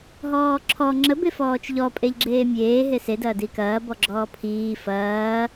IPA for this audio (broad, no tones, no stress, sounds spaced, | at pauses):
ɦ ɔː ǁʰ ɔ ŋ͡ǁ ə b e f ɔː t͡ʃ ʎ ɔ pʼ e ʎ ɡ͡ǁ eː mʲ eː ɦ e s e d ɐː d i k ɐː b ɔ ɡ͡ǁ ɔː pʰ iː f ɐː